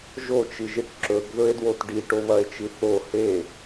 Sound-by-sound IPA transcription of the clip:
ʒ o t͡ʃ ɨ ʒ ɨ ʈ ǁ ɵ ɡ ð ɵ e̯ d w o t ɖ i ʈ o β ɐ e̯ t͡ʃ ɨ θ o h e

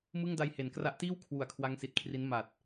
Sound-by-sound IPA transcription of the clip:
m ɯ˥˩ ŋ d a˧ j h e˩˦ n k r a˦˥ ʔ t iː˥˩ w kʰ w u˩˦ a̯ kʰ w a˦˥ ŋ s i˨˩ t̚ kʰ r i˦˥ n m a˨˩ t̚

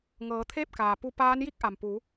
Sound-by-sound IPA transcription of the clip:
ŋ ɤː˩˧ t̪ʰ eː˥˨ p̚ k aː˩ p u˧ p aː˧˥ n j i˥˨ k̚ ʔ a˩ m p u˩˧

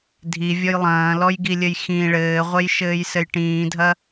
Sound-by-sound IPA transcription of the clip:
dʱ i vʲ ɔ j lˠ ɐ̃ː l ɔ j ɡ i lʲ ɘ j x ĩ ɭ ɘː ʁʷ e j ʃ ɘː j s ɘ j ʈ ĩː dʱ ɐ

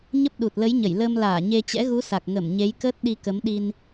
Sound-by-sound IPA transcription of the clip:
ɲ ə˦˥ p̚ ɗ u˨˩ t̚ l ə˨˦ j ɲ ə˧˩ j l əː˧ m l aː˧˩ ɲ e˧ t͡ɕ ɛ̰˧˥ ɣ u˨˦ s a˨˩ k̚ ŋ ə˧˩ m ɲ e˨˦ j k əː˦˥ t̚ ɗ i˧ k ə˨˦ m ɗ i˧ n

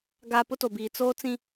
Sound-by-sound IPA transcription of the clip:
ɡ a˨ p ʊ˦ t o˨ b iː˨ t͡s oː˦ t͡s ĩ˦

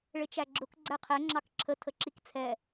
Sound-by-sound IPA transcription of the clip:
ɭ ɪ t͡ʃ æ ɡ͡ǁ ʊ k ɡ͡ǀ æ qʰ ɛ ŋ͡ǁ ɑ k ǁʰ ə tʰ ə ǁ i k t͡sʰ ɛ

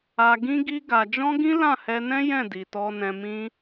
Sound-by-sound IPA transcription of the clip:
a˧ ɡ ĩ˦ ɡ i˦ ɡ a˧ d͡ʒ ɔ̃˦ ɡ ĩ˦ l ã˦˨ h ɛ˧ n ɛ̃˦ j ɛ̃˦˨ d i˨ t ɔ˧ n ɛ̃˧ m ĩ˦

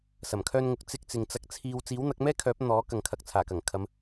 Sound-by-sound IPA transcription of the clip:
s ɐ˨˩ m kʰ œː˧ n ŋ ʊ˨˥ k̚ t͡s ɪ˧ k̚ t͡s ɪ˨ ŋ t͡s ɐ˧ k̚ t͡sʰ iː˧ w t͡s iː˨˥ w n̪ ɐ˨˥ k̚ m ɛː˥ kʰ œː˨˥ p̚ n̪ ɔː˨˥ k ɐ˨ ŋ kʰ ɐ˨ k̚ t͡sʰ aː˨˩ k ɐ˨˩ ŋ kʰ ɐ˨˧ m

